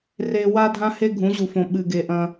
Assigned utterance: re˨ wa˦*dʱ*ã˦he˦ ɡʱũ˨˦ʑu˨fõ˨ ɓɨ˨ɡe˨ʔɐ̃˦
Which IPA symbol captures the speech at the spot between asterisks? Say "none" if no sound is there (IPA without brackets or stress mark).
dʱ